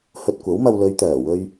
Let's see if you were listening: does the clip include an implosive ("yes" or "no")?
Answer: no